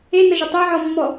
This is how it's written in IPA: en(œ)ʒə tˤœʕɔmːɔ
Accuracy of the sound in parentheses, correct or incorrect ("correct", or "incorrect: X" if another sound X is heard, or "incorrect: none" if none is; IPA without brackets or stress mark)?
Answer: incorrect: ə